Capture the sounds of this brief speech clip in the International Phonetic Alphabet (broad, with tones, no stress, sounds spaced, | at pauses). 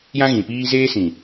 j ã˦ ɣ ĩ˨ p iː˦ z eː˦ s ĩ˨